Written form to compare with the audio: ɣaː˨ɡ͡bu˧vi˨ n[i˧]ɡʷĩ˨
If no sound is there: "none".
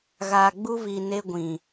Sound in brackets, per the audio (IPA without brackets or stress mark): e˧